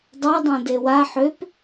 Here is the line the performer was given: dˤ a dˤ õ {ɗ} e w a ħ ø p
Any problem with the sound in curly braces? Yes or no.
yes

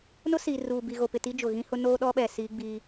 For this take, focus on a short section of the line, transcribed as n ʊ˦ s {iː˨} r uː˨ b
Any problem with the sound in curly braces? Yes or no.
no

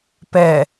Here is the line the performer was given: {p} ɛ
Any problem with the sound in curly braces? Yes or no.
no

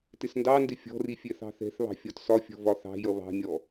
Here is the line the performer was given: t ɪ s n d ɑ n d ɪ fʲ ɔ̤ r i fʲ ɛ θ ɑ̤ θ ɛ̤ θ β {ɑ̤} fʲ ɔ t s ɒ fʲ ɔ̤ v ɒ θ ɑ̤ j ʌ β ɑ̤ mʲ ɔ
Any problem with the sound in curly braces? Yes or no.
no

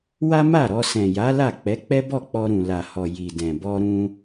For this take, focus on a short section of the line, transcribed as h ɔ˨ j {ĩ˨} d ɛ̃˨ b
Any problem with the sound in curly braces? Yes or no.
yes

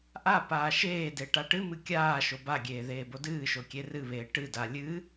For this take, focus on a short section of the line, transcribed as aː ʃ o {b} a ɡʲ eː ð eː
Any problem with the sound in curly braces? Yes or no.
no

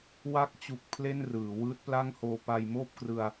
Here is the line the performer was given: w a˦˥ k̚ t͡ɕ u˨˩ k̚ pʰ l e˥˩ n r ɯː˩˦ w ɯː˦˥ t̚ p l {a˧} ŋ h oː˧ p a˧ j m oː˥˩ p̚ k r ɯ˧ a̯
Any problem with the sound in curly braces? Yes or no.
yes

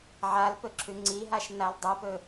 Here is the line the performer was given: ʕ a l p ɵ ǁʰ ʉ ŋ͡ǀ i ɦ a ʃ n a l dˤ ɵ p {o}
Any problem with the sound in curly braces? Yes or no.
yes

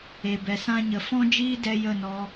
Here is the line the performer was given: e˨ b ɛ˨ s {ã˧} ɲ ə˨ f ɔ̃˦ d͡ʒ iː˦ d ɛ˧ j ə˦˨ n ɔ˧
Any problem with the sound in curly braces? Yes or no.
no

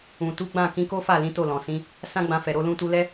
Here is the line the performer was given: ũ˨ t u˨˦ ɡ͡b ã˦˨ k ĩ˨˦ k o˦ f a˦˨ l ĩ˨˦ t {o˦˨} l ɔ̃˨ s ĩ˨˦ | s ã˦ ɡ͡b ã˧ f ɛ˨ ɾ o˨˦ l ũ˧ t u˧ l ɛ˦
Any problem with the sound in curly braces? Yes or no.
no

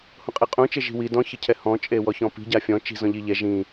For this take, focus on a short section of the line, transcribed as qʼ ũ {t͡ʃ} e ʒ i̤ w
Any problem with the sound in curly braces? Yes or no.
no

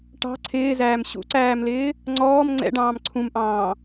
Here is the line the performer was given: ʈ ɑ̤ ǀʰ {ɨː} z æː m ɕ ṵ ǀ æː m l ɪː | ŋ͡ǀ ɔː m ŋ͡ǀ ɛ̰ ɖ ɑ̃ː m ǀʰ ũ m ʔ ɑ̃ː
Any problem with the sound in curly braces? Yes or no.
yes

